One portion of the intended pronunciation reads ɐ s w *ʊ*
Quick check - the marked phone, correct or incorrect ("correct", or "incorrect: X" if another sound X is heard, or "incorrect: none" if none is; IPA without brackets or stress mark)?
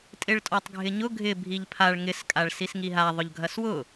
correct